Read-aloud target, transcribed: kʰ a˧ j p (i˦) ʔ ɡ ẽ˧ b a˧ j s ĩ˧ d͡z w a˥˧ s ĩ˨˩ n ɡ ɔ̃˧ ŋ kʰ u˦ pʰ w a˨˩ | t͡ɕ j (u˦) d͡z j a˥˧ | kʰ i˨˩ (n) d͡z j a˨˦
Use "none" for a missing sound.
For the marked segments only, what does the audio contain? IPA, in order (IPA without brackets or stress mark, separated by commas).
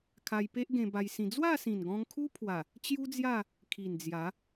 e˦, u˦, n